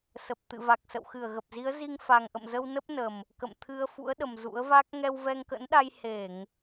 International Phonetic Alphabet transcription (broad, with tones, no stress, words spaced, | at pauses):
sə˨˩p̚t̪ɨ̰˧˨ va˨˩k̚sə̰˧˨wxɨ˧˩ə̯ ɣə˨˩p̚zi˨˦ə̯zi˧ŋ fa˨˩ŋʔə̰˧˨mzə˧w nə˦˥p̚nə˨˩m | kə̰˧˨mt̪ʰɨ˧ə̯ fṵ˧˥ə̯ɗə˨˩m zṵ˧˥ə̯va˦˥k̚ ŋɛ˧wvɛ˧ŋkə̰˧˥nɗa˧j he˧˩˨ŋ